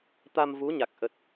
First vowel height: low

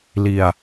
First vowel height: high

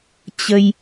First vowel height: mid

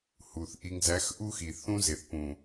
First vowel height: high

